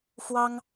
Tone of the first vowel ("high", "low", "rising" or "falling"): high